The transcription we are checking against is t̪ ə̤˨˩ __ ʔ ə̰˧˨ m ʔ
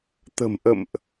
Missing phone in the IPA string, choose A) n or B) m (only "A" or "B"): B